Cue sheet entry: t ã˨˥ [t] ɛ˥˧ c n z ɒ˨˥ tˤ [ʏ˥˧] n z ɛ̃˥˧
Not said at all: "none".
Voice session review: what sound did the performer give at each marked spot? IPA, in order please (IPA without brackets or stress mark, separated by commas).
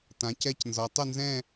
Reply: c, ʏ˥˧